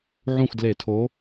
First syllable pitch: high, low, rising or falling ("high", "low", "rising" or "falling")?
falling